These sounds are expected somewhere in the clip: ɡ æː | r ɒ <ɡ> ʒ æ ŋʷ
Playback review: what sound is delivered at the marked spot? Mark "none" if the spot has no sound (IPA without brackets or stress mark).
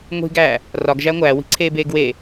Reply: ɡ